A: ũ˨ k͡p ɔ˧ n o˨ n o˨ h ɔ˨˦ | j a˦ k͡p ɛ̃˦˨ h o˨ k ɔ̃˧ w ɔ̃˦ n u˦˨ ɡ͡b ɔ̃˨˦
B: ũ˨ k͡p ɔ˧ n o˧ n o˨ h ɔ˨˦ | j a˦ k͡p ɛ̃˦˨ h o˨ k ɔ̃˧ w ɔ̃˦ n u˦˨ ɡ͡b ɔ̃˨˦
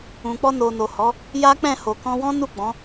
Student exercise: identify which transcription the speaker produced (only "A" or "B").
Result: A